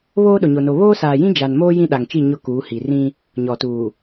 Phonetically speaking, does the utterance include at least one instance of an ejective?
no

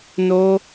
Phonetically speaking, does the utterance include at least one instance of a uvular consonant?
no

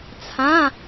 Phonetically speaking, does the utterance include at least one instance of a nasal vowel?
yes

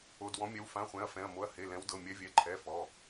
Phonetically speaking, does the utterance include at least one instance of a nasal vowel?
yes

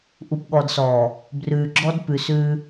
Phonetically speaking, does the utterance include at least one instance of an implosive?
yes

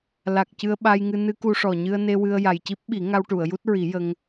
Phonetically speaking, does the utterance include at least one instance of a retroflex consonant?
yes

